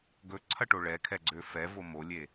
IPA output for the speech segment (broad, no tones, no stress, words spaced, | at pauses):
ɡɵǀʰɐʈo ɭɛkʰɛɡ͡ǀø fɛvo molʲe